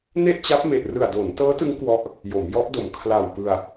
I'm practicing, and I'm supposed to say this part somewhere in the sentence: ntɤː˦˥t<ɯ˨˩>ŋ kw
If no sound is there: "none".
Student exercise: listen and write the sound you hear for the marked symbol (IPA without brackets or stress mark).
ɯ˦˥